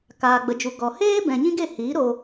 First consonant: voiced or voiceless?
voiceless